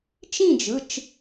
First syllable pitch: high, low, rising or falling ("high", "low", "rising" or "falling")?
falling